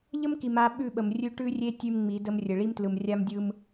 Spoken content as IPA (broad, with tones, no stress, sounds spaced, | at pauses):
ʎ ə˦ m k i˨ m a˨˦ ɓ ʉ˦˨ ɓ ə˨ m rʲ ʉ˦ ʈ ʉ˦ rʲ e˦ tʲ ʉ˦ m ŋ͡m i˨˦ d ə˦ m rʲ ə˨ ɭ i˦ m t l ɯ˨ m rʲ a˦ m dʲ ɯ˦ m